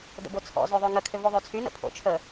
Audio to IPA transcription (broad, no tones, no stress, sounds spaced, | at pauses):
d ə̰ b o t͡sʰ ɔ̰ z ø ðˤ ø ŋ ə kʰ ø v o ðˤ ø t͡sʰ y n ə̰ pʰ o̰ t͡ʃʰ ə